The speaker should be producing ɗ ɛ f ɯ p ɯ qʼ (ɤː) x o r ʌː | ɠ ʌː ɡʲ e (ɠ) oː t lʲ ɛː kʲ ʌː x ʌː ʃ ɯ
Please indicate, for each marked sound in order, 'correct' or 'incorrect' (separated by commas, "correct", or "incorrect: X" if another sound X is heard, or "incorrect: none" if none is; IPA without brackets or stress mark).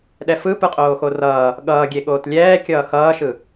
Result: incorrect: oː, correct